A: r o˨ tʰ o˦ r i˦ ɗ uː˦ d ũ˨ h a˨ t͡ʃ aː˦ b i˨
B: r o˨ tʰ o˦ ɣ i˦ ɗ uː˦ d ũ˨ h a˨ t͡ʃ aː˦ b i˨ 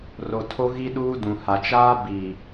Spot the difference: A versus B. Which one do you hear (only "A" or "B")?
B